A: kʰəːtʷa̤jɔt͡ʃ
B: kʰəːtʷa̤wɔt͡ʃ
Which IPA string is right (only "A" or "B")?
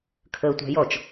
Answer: A